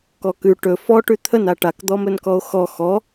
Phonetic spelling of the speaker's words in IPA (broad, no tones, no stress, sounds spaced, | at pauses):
k ɔ k ʉ ʈ ɵ f ɔ ʈ ʉ t̪ʰ ə n a ʈ a k d̪ ɔ m ɵ n k ɔ o̯ x ɔ x ɔ